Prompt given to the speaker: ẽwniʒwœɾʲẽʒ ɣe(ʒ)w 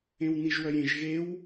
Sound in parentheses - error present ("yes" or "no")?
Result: yes